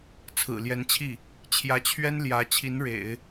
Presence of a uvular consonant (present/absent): absent